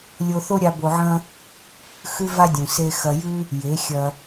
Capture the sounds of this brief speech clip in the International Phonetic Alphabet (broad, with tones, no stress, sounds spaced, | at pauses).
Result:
lʲ o˧ θ o˦ ɾʲ a˧ b o˧ ʕ ɐ̃˦ | x ʉ˦ v a˦ dʲ ũ˨ s e˧ x ɐ˧ j ʉ˦ | j e˨˦ xʲ ɐ˧